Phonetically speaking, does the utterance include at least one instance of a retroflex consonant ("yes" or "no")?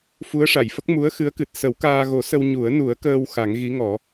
yes